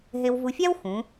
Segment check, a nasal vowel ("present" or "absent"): present